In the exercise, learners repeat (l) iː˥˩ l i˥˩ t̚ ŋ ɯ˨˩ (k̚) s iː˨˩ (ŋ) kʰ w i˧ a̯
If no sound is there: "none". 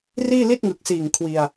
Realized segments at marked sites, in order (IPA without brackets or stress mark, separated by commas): r, k̚, ŋ